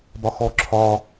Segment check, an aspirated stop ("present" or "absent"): present